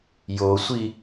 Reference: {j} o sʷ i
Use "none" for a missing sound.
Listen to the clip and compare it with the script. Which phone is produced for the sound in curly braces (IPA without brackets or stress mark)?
j